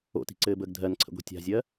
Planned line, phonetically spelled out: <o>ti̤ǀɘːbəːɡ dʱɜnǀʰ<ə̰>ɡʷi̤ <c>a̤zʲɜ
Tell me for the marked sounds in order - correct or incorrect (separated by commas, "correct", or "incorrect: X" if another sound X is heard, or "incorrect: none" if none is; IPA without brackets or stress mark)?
incorrect: o̰, correct, incorrect: tʲ